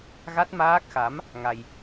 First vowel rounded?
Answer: no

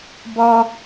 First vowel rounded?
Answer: yes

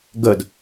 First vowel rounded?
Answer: no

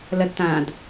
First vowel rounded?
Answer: no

